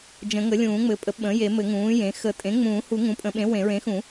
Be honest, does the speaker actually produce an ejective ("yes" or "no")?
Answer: yes